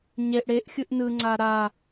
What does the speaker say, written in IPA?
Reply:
ɲ e ʔ ɽ e ʔ xʲ ɯ ʔ n ɯ ŋ͡ǀ a ɾ a

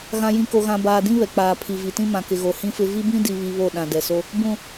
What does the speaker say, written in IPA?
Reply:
ɣ ã˨ j ĩ˨ k o˨ ɣ ã˨ b aː˨ d ĩ˦ β ɛ˨ k͡p aː˨ pʰ i˨ v i˨ t ĩ˦ m ã˨ k ɪ˨ ɣ o˨ h ĩ˦ f ɪ˦ v i˦ b ĩ˦ d i˦ β i˦ β o˦˨ ɗ ã˨ d ɛ˨ s o˦ | b ũ˨

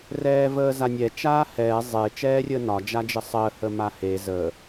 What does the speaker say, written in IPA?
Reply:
r ɛː v əː z a nʲ ɛ t͡ʃ aː h ɛː zˤ e t͡ʃ ɛː rʲ əː n ɒ d͡ʒ a d͡ʒ ə sˤ əː h ə m a h e z ə

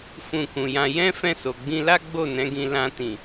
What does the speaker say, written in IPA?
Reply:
f ũ˧ k ũ˨ j ã˧ j ɛ̃˦ f ɛ̃˦˨ s o˨ ɡ͡b ĩ˧ l a˦ ɡ͡b o˦˨ n ɛ̃˨˦ ɡ ĩ˧ l ã˧ t ĩ˨

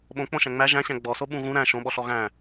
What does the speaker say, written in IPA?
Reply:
ɓ õ k͡p õ ʃ æ̃ ŋ͡m æ ʒ æ̃ ɕ æ̃ ɡ͡b ɔ s o ɓ ũ ɣ ũ ɾ æ̃ ʃ õ ɓ ɔ ɬ ɔ ɣ æ̃

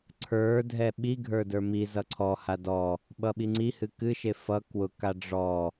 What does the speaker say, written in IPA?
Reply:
ǀʰ ə˞ dʱ ɛ ɓ i ɡʱ ə˞ d ə˞ m i z ʌ ǀʰ ɔ h a d ɔ | ɓ ʌ ɓ i ŋ͡ǀ i h ɨ k ɨ ʃ e f ʌ k w ʊ k a ɖ͡ʐ ɔ

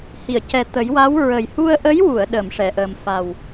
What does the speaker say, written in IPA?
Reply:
h i˨˩˨ ə̯ c ɛ˨˩ t̪ ə˨˩˦ j w a˧˥ w ɹ ə˨˩ j h u˧ ə̯ ʔ ə˧˥ j w u˨˩˨ ə̯ ɗ ə˨˩˨ m ʂ ɛ˨˩˨ ʔ əː˨˩ m f a˨˩ w

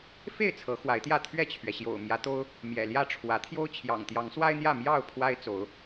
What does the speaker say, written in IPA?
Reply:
f e˥˨ ɪ̯ t͡sʰ ɤ˨˦ x w a˨˦ ɪ̯ t̪ j ä˥˨ t̪ʰ ɥ ɛ˥˨ t͡ɕʰ ɥ ɛ˩ ɕ j o̰˨˩ ʊ̯ m j ä˨˦ t̪ o˦ ʊ̯ | m j ɛ̰˨˩ l j ä˥˨ ʈ͡ʂʰ w ä˨˦ t̪ʰ j o˦ ʊ̯ t͡ɕʰ j ɑ̰˨˩ ŋ t̪ j ɑ˨˦ ŋ s w a˦ ɪ̯ n̪ j ä˥˨ m j ɑ˥˨ ʊ̯ pʰ w a˦ ɪ̯ t͡s o˨˦ ʊ̯

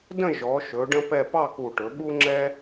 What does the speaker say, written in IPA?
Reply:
d ə̃˥˧ ʒ ɔ˩˧ ʃ ɵ˩˧ ɖ ə̃˥ p ɛ˥˧ p ɑ˥˧ k u˧˩ ʈ ɵ˩˧ ɓ u˥ ŋ͡ǁ ɛ˥

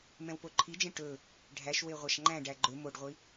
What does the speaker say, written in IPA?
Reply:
m ɛ̃ w p o ǃʰ i d͡ʒ ẽ ʈ ɵ | ɖʱ æ ʃ w e ʁʷ ɑ ʃ ŋ͡ǃ æ̃ ɖ æ ɡ͡ǃ ɵ m o ɖ ʁʷ i

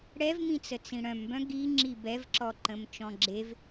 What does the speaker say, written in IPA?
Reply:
ɽ ɛ v m ĩ t͡s ə t͡s ĩ ɽ œ̃ m b œ̃ ɡ i ŋ͡ǁ i b ɛ v ǁ ɔ ǃ ə̃ m t͡ʃ ɔ̃ ɡ͡ǁ e v

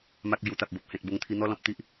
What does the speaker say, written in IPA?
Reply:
m a˨ k̚ l j u˨˩ t̪ a˨ p̚ b o˨ p̚ h ẽ˨ t̚ b o˧ ŋ t̪ʰ i˧ n̪ ɔ˦ l ɔ̃˨ p̚ t̪ i˦ ʔ

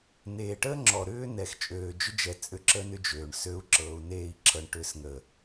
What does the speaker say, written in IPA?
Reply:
n eː˨ ʈ əː˦ ŋ͡ǁ ɔ˨ ɾ ʏː˦ n ɛ˨ x t͡ʃʼ øː˨ d͡ʒ ʏ˦ d͡ʒ ɛ˨ t͡sʼ ʏ˦ ǁ ə˦ n ʏ˦ d͡ʒ øː˨ ɳ s ø˨˦ u̯ ǁ ɤː˨ u̯ n eː˦˨ i̯ ǁʰ ɤ˨ ɳ ʈ ʏː˨ s ŋ ə˨

